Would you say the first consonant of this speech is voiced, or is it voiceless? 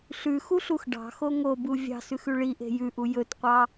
voiceless